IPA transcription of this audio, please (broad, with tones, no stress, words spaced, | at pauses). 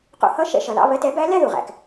qṵ˧hʌ˥˧ ʃɛ̰˧ʃʌ˩lɑ̰˧˥˧βɜ˧˥˧t ɛ˧˥bæ˧˥lɛ˥˧ðu˩ ʁæ̰˩k